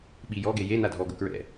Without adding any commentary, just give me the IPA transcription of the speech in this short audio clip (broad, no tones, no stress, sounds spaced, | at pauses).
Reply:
ɓ i j ɔ ɡ e j e n a dʱ ɔ ɡ ʊ k ɹ ɛ̰